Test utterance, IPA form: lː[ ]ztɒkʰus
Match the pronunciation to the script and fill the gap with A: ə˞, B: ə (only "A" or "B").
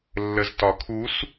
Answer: B